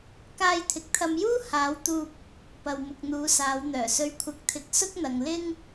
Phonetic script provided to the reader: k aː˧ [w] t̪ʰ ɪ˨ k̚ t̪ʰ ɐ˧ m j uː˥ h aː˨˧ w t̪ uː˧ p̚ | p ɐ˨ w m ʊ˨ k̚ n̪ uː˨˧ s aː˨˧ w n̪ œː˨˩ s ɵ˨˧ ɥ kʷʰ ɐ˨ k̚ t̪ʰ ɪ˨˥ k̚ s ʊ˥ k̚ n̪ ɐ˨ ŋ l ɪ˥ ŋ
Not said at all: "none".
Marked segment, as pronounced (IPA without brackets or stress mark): j